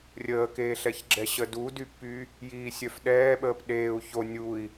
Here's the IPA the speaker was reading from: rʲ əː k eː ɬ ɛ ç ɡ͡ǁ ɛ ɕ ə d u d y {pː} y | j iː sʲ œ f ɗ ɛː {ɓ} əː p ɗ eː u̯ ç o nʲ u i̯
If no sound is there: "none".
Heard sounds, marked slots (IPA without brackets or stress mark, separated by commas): pː, ɓ